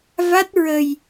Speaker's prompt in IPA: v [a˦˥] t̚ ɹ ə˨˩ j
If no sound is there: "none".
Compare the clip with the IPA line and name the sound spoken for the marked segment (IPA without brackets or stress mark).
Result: a˦˥